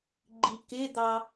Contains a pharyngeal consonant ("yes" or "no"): no